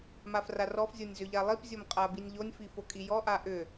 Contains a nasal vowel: no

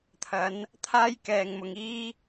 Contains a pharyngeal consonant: no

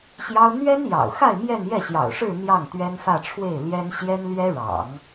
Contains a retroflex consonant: yes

